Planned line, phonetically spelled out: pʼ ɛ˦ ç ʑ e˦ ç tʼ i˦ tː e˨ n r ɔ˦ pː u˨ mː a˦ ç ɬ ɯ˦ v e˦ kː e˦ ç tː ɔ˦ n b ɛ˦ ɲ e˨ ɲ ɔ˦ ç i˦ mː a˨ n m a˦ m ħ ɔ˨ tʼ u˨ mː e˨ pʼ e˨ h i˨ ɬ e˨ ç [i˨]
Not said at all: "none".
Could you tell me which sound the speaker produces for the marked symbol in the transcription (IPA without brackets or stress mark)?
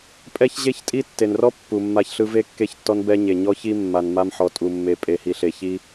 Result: i˦